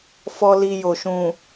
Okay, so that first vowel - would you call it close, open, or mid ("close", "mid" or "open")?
mid